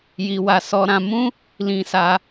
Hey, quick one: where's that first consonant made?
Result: palate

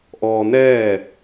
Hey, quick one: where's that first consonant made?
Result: throat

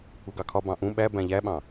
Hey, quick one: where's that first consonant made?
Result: velum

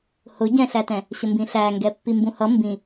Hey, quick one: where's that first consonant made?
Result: throat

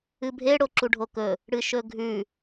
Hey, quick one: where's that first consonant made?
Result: lips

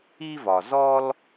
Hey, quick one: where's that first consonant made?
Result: lips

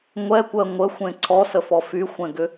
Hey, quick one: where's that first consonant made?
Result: velum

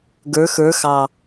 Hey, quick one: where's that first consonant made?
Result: velum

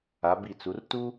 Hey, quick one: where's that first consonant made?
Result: lips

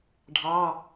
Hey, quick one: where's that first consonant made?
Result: retroflex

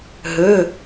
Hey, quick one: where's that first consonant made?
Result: throat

